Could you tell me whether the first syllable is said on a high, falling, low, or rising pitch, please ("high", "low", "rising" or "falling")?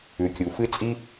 rising